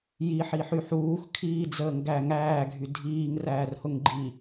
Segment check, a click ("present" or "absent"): present